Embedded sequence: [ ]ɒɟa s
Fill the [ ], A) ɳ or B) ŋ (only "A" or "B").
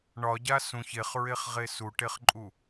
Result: A